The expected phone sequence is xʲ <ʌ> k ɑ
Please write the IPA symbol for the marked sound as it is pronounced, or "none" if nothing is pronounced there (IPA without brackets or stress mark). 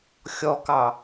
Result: ɔ